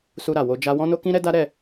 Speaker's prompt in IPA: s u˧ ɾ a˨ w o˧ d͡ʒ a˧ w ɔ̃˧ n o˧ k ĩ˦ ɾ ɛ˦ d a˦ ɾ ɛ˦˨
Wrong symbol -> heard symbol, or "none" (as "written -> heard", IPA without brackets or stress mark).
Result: none